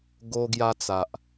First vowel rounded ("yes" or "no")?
yes